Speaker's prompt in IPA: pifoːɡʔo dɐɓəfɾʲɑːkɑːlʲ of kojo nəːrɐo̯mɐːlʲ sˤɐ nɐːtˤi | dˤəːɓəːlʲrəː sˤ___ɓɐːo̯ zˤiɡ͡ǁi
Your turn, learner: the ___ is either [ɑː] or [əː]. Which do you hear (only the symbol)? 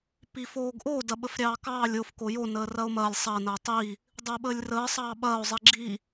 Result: ɑː